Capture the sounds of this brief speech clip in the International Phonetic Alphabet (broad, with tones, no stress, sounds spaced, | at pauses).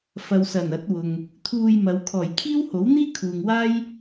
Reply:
f ɐ˨ w s ɐ˨˩ n ɐ˨˥ t̚ w ʊ˨ ŋ | t̪ʰ uː˧ j m ɐ˨˧ w kʰ ɔː˨˩ j kʰ iː˥ w h o˨˥ w n̪ iː˥ kʰ uː˨ ŋ w aː˥ j